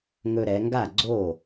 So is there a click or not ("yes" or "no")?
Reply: yes